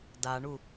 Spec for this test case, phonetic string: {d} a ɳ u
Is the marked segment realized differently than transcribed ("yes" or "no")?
no